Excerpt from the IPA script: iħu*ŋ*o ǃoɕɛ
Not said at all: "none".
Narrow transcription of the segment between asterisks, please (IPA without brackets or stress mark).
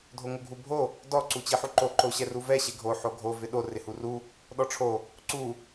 ǃ